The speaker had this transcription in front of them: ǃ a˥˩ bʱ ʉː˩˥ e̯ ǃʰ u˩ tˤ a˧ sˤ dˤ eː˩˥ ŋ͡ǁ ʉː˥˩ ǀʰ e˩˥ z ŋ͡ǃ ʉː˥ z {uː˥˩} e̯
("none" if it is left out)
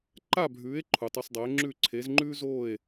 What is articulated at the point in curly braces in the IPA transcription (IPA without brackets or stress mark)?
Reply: oː˥˩